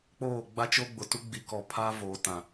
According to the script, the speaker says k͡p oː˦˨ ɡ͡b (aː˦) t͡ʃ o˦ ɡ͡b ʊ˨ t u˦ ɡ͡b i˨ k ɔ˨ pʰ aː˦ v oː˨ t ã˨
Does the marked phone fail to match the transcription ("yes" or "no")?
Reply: yes